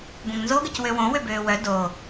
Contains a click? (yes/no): no